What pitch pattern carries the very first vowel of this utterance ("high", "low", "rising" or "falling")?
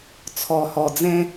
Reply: low